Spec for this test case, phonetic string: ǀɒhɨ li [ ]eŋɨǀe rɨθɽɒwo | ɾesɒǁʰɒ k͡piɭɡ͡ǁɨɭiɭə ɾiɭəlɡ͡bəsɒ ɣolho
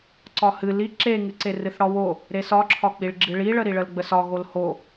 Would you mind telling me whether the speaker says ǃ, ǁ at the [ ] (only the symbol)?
ǁ